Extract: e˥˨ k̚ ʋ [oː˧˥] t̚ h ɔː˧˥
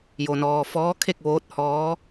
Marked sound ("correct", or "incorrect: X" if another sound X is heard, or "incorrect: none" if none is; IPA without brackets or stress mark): correct